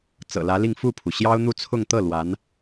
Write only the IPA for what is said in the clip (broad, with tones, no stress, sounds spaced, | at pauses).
t͡s ɤ̰˨˩ l ä˧˥ l i˥˧ ŋ f u˥˩ pʰ u˩ ɕ j ɑ˥ ʊ̯ n̪ u˥˧ t͡sʰ ʊ˥˧ ŋ t̪ ɤ˥˩ l w a˧˥ n